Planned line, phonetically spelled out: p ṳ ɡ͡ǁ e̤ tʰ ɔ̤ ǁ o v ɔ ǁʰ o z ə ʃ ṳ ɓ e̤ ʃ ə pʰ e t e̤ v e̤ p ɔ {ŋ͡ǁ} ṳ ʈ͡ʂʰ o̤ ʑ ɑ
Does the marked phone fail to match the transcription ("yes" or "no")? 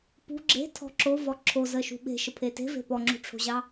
no